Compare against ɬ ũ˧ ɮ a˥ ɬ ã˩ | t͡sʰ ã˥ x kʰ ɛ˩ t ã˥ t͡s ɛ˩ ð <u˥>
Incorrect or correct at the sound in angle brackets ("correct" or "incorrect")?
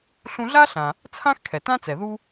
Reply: incorrect